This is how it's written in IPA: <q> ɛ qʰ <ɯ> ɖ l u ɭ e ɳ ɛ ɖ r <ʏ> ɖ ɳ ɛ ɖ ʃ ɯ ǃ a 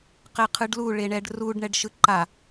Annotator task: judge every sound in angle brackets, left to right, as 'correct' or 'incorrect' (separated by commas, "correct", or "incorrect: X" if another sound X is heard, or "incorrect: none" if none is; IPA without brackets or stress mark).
correct, correct, incorrect: u